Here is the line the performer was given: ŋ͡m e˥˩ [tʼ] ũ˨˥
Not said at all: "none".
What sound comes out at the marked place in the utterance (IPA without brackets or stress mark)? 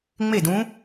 d